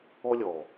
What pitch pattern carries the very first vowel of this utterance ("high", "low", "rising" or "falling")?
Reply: high